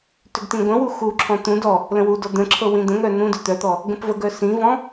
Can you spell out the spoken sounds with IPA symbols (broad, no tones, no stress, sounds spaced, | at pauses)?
t ʏ ɡ t ĩ ɡʷ ə̃ w u x u ǁʰ ɔ̃ t̪ ũ d ɔ | l ə̃ w u d ɔ d̪ ə̃ ǁʰ ɤ w ĩ d̪ ə̃ ŋ œ n ũ d ʏ t̪ œ t̪ ɔ | ɡ ə̃ p v ə ɡ œ s ĩ v ɔ̃